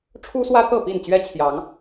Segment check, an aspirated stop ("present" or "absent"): present